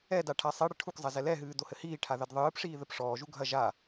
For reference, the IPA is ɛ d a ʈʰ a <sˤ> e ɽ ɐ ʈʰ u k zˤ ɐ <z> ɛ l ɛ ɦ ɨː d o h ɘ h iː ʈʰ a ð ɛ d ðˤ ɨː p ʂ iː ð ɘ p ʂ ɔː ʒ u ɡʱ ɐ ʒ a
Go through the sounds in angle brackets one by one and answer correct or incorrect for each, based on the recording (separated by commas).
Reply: correct, correct